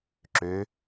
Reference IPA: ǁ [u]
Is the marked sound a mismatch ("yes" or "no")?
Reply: yes